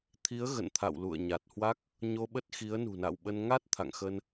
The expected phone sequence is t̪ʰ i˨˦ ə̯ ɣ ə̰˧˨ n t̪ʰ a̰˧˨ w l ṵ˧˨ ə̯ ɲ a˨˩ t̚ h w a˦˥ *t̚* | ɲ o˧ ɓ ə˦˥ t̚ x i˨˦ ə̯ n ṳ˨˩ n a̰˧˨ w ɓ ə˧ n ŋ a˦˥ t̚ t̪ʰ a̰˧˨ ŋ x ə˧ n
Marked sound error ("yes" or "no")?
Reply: yes